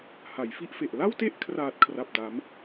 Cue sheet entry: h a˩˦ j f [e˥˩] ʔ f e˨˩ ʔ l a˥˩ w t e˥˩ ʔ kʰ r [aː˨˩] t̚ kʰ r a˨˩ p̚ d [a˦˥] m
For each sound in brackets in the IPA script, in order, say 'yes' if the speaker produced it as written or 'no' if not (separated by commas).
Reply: no, yes, yes